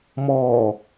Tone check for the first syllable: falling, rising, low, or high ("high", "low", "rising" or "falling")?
low